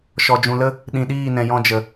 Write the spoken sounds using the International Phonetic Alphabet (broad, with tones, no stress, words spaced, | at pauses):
ʃɔ˨d͡ʒũ˨lə˦ | ɗĩ˨ɗiː˦˨nɛ̃˨ jɔ̃˧d͡ʒə˨